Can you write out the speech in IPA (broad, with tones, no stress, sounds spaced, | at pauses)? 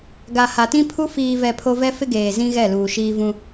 ɡ a˨ h a˨ t ĩ˦ pʰ u˦ f iː˨ v ɛ˨ pʰ o˦ v ɛ˦ f ɪ˦ ɡ eː˨ z ĩ˦ ɣ ɛ˦˨ l uː˨ ʃ iː˦ v ũ˦